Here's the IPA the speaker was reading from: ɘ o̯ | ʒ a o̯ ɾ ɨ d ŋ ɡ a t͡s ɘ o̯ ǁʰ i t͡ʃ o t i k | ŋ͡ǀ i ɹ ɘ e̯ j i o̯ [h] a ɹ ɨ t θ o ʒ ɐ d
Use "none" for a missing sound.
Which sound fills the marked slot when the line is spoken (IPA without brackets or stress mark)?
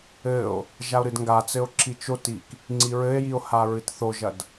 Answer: h